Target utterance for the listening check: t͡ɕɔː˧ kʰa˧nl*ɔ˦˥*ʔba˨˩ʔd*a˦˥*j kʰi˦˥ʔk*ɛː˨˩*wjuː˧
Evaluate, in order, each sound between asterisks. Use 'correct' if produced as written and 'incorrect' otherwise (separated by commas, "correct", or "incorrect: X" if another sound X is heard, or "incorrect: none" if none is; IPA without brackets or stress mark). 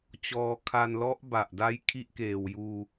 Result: correct, correct, incorrect: eː˨˩